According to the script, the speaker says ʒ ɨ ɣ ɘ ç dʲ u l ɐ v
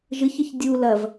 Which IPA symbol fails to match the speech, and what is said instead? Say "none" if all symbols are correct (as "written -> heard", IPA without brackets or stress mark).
ɣ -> ç